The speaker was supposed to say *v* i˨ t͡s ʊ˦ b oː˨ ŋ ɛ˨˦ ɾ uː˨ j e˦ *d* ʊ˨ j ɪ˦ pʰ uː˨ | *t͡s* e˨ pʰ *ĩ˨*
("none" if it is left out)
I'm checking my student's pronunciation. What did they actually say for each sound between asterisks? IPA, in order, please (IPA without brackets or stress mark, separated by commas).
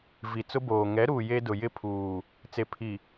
v, d, t͡s, i˨